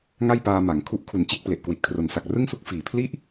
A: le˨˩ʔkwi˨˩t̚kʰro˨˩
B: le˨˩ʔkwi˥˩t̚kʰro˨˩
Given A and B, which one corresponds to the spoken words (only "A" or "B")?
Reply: A